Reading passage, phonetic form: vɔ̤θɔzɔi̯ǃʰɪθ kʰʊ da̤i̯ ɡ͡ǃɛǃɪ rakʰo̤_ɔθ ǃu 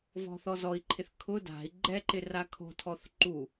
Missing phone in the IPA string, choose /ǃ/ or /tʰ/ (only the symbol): tʰ